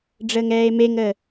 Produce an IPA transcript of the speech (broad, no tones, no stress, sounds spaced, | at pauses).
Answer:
ɖ͡ʐ əː ŋ ɛː e̯ m e ŋ əː